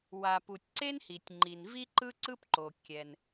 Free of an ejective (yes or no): yes